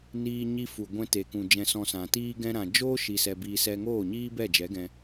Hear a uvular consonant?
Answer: no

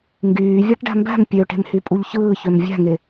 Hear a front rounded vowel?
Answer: yes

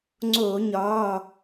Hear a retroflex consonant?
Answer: no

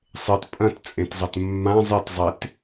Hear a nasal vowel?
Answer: yes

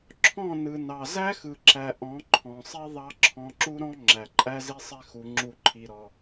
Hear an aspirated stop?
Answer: yes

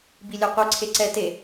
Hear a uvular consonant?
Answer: yes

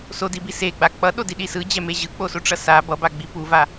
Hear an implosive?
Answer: yes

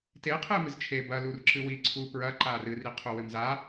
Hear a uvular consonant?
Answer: yes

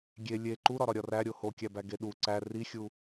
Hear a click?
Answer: yes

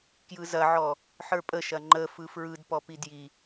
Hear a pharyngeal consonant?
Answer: yes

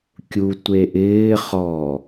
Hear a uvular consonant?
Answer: yes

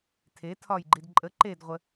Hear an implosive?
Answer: no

